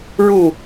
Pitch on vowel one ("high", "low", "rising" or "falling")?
falling